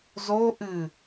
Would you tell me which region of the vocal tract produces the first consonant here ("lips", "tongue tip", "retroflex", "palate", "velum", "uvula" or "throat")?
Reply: tongue tip